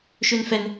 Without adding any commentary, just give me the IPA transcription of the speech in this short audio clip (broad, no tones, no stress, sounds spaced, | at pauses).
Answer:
ʃ ø n f ɛ n